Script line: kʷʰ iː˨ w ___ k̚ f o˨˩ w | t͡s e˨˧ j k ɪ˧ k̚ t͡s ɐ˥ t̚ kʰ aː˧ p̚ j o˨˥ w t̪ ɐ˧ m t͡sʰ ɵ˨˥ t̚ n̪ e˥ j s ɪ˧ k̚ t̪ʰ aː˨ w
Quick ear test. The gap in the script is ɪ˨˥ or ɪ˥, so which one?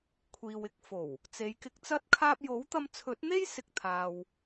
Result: ɪ˨˥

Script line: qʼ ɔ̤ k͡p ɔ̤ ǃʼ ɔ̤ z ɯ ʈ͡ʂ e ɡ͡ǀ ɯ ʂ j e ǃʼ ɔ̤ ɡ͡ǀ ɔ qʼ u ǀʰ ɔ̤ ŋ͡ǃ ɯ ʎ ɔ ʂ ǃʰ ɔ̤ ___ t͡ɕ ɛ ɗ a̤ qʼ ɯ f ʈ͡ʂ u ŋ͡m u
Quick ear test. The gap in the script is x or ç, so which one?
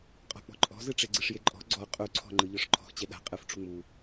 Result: x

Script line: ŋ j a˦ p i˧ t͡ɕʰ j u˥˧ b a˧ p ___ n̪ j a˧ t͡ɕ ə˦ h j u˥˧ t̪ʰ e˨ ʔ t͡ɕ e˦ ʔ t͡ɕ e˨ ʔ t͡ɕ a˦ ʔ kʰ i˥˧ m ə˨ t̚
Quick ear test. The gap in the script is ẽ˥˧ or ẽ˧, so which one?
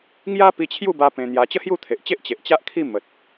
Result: ẽ˧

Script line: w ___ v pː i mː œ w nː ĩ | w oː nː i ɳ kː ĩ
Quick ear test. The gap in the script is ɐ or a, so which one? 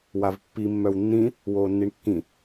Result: a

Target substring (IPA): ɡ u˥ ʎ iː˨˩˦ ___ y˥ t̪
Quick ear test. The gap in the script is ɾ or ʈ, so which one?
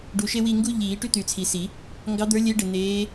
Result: ʈ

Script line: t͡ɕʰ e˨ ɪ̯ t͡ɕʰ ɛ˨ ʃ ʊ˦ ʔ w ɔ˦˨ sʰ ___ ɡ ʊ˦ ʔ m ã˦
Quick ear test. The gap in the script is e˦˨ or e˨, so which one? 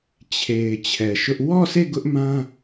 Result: e˦˨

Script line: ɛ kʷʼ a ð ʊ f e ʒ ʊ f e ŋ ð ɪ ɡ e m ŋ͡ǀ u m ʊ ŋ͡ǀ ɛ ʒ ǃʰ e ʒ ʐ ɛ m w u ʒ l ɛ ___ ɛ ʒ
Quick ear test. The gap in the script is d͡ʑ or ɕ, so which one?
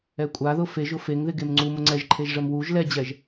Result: d͡ʑ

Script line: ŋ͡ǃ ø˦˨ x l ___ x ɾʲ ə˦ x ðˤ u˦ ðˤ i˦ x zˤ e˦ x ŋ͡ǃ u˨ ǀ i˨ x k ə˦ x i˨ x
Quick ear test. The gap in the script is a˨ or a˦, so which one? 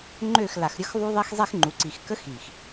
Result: a˨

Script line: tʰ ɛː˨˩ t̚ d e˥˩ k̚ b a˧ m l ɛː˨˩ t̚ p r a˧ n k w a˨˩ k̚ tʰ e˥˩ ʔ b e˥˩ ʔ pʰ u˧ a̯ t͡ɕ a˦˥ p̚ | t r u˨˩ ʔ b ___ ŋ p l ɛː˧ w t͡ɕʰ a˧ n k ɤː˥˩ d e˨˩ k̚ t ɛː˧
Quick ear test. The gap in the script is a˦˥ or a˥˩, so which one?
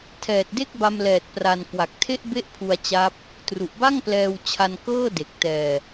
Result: a˥˩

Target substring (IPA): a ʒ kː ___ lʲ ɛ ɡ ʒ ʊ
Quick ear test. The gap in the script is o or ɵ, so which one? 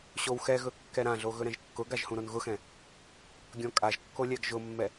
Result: o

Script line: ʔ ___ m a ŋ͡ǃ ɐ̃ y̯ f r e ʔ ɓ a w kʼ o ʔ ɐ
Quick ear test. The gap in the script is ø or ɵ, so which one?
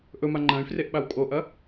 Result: ɵ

